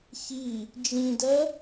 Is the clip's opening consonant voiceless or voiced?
voiceless